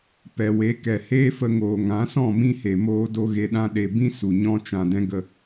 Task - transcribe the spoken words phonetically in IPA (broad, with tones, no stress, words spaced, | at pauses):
pɛ˨we˨˦ kɛ˨heː˦fə˧ŋoː˨ ŋã˨˦sɔ̃˦˨ mĩ˦he˨ moː˧do˧ ɣe˦ɗã˦ ɗe˨bĩ˦ su˨ɲɔ̃˦ t͡ʃã˨dɛ̃˦ɡə˧